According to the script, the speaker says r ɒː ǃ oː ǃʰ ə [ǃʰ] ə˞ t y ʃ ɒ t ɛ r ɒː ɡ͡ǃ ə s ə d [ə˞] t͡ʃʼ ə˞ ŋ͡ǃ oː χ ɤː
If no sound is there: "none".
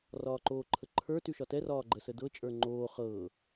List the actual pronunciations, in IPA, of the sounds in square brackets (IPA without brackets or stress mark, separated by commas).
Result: ǃʰ, ɤ